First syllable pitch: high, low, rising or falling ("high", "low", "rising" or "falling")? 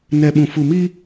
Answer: low